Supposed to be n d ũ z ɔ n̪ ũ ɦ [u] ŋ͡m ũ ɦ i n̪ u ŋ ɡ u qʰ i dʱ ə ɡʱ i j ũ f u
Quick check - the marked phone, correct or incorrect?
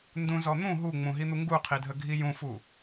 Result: correct